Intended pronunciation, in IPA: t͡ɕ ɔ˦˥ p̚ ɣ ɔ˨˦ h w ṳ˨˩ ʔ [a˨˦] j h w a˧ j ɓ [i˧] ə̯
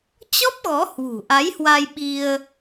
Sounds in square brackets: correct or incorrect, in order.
correct, correct

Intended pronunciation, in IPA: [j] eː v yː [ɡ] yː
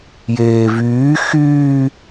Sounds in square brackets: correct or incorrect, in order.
correct, incorrect: x

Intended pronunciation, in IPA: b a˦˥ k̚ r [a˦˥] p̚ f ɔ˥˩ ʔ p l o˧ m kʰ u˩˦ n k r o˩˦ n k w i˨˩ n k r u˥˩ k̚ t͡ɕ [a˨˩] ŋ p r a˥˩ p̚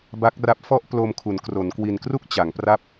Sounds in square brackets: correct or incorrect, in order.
correct, incorrect: a˩˦

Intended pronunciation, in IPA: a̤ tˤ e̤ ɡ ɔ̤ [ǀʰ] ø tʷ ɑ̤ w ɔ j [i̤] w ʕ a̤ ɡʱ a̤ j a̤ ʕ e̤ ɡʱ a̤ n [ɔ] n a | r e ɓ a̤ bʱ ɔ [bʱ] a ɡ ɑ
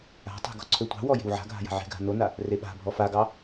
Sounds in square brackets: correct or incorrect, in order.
correct, incorrect: e̤, incorrect: o, incorrect: f

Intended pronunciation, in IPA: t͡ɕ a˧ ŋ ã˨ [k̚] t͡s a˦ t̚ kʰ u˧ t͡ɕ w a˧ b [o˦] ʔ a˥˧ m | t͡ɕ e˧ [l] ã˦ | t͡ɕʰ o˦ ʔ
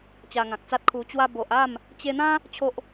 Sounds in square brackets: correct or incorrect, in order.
correct, incorrect: o˨, incorrect: n̪

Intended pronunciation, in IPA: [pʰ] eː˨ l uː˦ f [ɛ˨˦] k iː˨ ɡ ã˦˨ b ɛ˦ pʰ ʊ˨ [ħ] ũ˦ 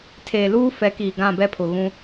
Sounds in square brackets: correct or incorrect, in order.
incorrect: tʰ, correct, incorrect: ɣ

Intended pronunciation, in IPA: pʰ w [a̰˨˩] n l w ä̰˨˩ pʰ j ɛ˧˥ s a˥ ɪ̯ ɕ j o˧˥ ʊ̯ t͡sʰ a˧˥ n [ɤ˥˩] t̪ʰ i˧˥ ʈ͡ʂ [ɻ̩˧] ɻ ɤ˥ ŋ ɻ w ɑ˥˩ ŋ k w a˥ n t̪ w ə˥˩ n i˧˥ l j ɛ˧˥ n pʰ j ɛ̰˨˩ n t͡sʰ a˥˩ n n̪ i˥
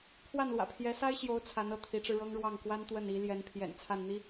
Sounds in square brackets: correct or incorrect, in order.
incorrect: a˥˩, correct, correct

